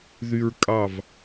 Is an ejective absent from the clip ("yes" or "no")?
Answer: no